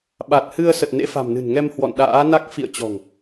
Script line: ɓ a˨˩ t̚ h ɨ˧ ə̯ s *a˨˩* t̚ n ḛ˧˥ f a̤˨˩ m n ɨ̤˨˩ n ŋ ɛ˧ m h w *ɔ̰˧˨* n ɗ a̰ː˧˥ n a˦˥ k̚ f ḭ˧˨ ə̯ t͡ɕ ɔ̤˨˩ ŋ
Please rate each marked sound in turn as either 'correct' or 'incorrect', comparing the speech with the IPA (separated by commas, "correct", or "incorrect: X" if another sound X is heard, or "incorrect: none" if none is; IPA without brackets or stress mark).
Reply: incorrect: ə˨˩, correct